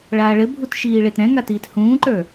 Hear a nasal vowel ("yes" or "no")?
yes